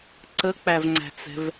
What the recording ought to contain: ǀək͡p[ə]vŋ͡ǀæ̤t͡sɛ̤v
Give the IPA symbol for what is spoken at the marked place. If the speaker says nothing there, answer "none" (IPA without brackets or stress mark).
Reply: æ